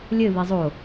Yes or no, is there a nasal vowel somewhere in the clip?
no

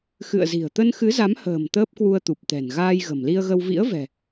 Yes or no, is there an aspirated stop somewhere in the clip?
no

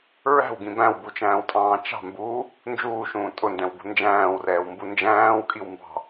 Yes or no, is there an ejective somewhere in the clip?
yes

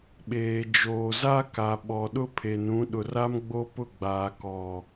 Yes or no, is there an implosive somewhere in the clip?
yes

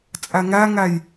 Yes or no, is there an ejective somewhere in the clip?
yes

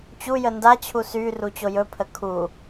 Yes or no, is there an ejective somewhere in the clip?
no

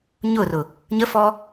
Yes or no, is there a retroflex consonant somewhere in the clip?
no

